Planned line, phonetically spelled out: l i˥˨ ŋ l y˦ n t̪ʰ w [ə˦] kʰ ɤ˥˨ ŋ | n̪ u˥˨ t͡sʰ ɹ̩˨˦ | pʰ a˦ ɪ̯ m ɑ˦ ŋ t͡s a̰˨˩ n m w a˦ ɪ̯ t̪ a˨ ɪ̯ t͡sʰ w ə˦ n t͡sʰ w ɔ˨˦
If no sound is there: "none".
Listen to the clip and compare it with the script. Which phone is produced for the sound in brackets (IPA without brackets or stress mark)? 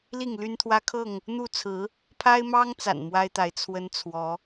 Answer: ä˦